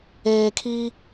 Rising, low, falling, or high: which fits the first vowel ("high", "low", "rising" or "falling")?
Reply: low